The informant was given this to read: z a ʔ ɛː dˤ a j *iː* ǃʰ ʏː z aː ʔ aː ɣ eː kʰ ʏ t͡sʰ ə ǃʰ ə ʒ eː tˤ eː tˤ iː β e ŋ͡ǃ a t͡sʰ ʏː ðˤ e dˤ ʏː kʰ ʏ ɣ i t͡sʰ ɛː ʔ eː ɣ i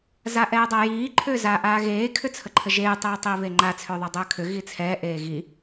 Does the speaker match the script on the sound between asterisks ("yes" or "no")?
yes